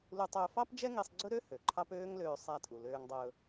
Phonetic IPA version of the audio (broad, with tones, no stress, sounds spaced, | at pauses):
l u˧ tˤ ɵː˧ f ɑ˥ p d͡ʒ ɛ˥ ŋ i˧ sˤ ɡ͡ǀ ɵ˥ ɾ ø˥ h ø˩ ǃʰ ɑ˥ p øː˥ ŋ l øː˧ sˤ æ˧ tʼ u˩ l øː˧ ŋ dˤ ɵː˧